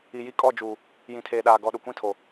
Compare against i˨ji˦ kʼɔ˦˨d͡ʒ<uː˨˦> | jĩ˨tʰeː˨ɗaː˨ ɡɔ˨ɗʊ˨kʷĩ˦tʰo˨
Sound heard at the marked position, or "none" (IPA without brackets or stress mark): uː˨